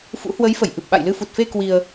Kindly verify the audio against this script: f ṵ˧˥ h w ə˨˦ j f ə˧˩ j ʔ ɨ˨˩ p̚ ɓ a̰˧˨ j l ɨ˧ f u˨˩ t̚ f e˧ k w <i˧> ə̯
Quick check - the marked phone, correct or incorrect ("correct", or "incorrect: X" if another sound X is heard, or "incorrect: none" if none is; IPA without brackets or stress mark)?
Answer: correct